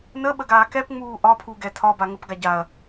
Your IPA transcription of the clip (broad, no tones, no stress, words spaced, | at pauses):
nəɓəɡaː kɛpŋ͡muː ʔɒpʰuɡɛ tʰɒba ŋəpɡa ɟaɐ̯